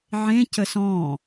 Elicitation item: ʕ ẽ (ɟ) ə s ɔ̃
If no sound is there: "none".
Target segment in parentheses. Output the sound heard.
c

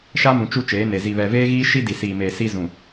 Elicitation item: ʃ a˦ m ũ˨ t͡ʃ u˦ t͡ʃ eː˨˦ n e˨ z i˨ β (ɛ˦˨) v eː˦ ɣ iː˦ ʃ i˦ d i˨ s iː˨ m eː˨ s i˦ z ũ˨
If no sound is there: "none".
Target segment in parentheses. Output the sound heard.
ɛ˨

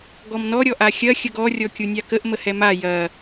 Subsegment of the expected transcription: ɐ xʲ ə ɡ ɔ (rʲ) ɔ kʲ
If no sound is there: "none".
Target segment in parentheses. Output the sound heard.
rʲ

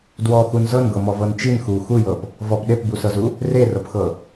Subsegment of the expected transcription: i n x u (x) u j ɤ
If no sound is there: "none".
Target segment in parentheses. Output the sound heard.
x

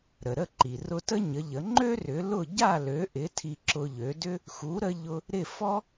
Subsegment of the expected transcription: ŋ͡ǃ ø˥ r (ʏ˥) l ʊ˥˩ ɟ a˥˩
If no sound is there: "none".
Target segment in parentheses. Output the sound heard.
ʏ˩˥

